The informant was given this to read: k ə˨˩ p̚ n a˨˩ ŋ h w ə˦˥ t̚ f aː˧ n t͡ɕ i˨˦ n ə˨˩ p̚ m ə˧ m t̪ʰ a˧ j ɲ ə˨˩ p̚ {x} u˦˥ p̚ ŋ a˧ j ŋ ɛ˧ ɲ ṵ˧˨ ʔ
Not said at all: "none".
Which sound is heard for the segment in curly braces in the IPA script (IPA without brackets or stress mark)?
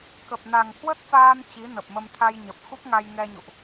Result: x